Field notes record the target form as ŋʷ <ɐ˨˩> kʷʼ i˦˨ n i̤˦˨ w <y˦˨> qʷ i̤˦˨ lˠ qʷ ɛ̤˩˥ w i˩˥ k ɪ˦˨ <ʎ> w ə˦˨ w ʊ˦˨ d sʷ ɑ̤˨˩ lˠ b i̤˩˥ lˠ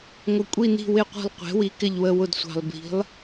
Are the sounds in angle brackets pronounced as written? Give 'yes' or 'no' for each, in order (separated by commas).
no, no, yes